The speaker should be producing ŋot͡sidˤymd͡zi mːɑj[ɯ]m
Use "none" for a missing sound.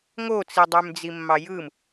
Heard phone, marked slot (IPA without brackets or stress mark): ɯ